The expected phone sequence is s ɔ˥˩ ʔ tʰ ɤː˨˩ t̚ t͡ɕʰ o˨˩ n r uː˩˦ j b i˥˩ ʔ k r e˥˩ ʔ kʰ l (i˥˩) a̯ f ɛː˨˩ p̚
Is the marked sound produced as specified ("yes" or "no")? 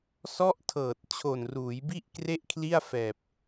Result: yes